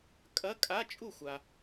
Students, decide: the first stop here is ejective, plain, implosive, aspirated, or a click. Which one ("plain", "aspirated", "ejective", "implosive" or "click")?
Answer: ejective